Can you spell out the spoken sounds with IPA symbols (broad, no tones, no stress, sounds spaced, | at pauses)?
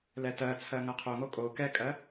l ɛ t ɜ t͡sʰ ɜ ŋ ɐ qʰ o ŋ o kʼ o k ɛ kʼ ɜ